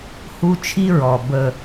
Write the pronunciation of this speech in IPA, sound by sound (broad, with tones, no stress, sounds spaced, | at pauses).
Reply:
h u˦ t͡ʃʰ i˦ ɹ ɔ˨ b ə˨